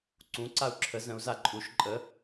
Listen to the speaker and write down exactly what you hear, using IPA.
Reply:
ǀ ũ ǀ a u̯ ǁʰ ə z ə̃ u̯ z a ǃʼ u ʃ ǃʼ ə

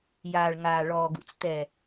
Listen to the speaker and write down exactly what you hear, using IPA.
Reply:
j aː˨ ɭ ŋ aː˨ ɭ ɔː˨ ɡ ṵ˨ t͡s t̪ ɛ˨

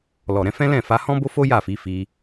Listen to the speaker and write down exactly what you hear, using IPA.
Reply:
l ɔ˨ ɾ ɛ̃˨˦ f ɛ̃˦ l ɛ̃˦˨ f a˧ h ɔ̃˦ b o˦ f o˦ j a˦˨ f i˨˦ f i˧

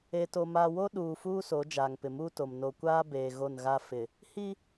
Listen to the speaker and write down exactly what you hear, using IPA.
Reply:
e˨ t o˨ m aː˨ w o˦ ɗ uː˨ f uː˦ s o˨˦ d͡ʒ aː˨ ŋ p ɪ˨ m uː˦ t o˨ m n o˨ kʷ aː˦ b eː˨ ɣ o˦˨ n ɣ a˦ f ɪ˨ | h i˦

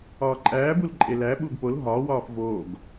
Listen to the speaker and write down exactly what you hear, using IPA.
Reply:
ɒː ǃʼ æː b u l ǃʼ e l æ ɓ uː ɡ p o l ɦ ɒː w ɒː f v oː ɡ

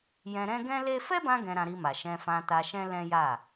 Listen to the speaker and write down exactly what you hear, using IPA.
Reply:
j ɛ̃˧ ɾ ɛ̃˦ ɡ ɛ̃˦ l e˦ f ɛ˦ b ã˧ ɡ ɛ̃˧ ɾ ã˧ ɾ i˧ m a˨ ʃ ɛ̃˧ f ã˧ t a˧ ʃ ɛ̃˦ l ɛ̃˦ j a˦˨

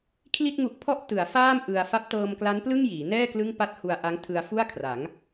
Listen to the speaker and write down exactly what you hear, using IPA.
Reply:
kʰ l i˥˩ t̚ ŋ u˦˥ ʔ pʰ ɔ˥˩ ʔ t ɯ˩˦ a̯ f aː˥˩ m ʔ ɯ˧ a̯ f a˦˥ p̚ t ɤː˧ m k l a˦˥ n p l ɯ˥˩ ŋ j iː˩˦ n ɛː˥˩ k l ɯ˥˩ ŋ p a˥˩ t̚ h u˧ a̯ ʔ a˦˥ ŋ tʰ ɯ˧ a̯ f u˥˩ a̯ kʰ r a˩˦ ŋ

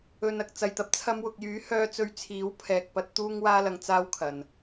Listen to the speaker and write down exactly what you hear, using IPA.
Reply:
ɵ˨ n ɐ˨ k̚ t͡s ɐ˨ j t̪ ɐ˧ p̚ t͡sʰ ɐ˧ m w ʊ˨ k̚ j yː˨˥ h œː˧ t͡s ɵ˧ ɥ t͡sʰ iː˨˥ w pʰ ɛː˨ k̚ p ɐ˧ t̚ t̪ uː˥ ŋ w aː˥ l ɐ˧ ŋ t͡s aː˥ w kʰ ɐ˨ n

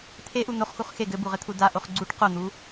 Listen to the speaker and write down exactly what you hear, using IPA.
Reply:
t̪ʰ e ʔ u n̪ o χ x u χ x e ɡ ɘ b u ʁ ɘ t̪ʰ u d a ʔ o χ ɡ͡ǀ u ʈ q o n̪ u

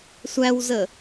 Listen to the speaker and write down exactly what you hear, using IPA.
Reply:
sʷ æ w z ə

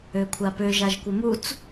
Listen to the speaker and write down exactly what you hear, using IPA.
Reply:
ø kʷʰ a p ø ʒ a ʒ kʷ ə m u t͡s

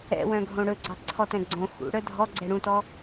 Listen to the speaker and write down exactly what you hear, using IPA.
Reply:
ɛ̰ w œ̃ ɡʱ õ ɽ ɵ ɡ͡ǀ ɑ ǀʰ ɔ t ɛ̃ ɡ͡ǀ õ x ṵ ɽ œ dʱ ɔ ɡ͡ǀ ɛ ɽ ũ t ɔ

